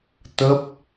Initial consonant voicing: voiceless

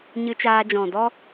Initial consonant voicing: voiced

